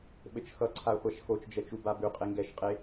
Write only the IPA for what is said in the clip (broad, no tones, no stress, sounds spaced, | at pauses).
ɓ ɘ t͡ʃ x ʌ ǀʰ a χʷ a ʃ x o t͡ʃ d͡ʒ ɛ t͡ʃ u b a b ʉ qʼ e ŋ ɡ ɛ ʃ qʼ e